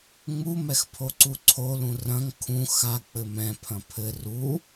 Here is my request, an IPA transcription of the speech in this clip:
ŋ͡m u m ɛ x pʰ o ǀ u ǀʰ o l ũ r ɐ̃ ŋ kʰ ũ x a k͡p ɘ m ɛ̃ pʰ ɐ̃ pʰ ɘ r u

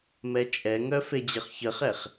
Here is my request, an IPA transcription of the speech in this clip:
m ɛ t͡ʃʼ ɛ ŋ œ f e d͡ʑ ə χ ç ə χ ɛ χ

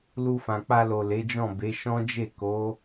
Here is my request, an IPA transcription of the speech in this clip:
l u˧ f ã˨ k͡p a˧ l o˨ l e˨˦ d͡ʒ ɔ̃˦˨ b e˨˦ ʃ ɔ̃˦ d͡ʒ e˦˨ k o˨˦

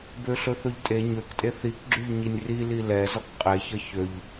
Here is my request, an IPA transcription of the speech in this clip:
b ø ɬ ɵ θ ɵ ʎ tʼ e ɲ ø k tʼ e θ i k ɡ͡ǁ ʉ ʎ ɲ i nʲ r i l i l ɛ z ɔ k qʼ e ç ʌ ç ø ʎ

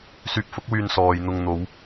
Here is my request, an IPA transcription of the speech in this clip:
s yː˧ p̚ f ʊ˥ k̚ w yː˧ n s ɔː˨ j n̪ ʊ˧ ŋ n̪ o˨˧ w

